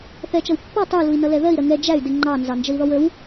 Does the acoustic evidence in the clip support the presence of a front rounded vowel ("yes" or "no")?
yes